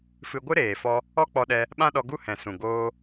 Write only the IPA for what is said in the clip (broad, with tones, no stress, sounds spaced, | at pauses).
f ɨ˧ ɡʷ ɨ˦ ɾ eː˨ f ɔ˧ | ɔ˦ k͡p ɔ˧ ɗ ɛ˧ | ɓ ã˦ ɗ ɔ˧ ɡ u˦ h ɛ̃˨ s ũ˨ ɡ oː˧